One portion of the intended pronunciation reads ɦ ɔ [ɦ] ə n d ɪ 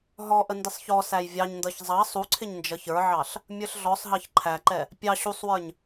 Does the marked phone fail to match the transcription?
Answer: yes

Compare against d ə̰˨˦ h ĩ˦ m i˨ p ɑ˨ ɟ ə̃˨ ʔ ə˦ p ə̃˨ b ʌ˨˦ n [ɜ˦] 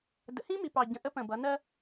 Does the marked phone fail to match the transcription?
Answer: no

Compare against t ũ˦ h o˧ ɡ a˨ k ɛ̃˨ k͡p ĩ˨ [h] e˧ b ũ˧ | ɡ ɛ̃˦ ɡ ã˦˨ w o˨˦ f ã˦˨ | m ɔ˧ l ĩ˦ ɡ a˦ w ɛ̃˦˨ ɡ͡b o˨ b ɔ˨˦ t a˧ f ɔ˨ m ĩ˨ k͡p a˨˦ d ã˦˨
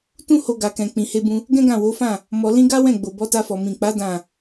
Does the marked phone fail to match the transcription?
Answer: no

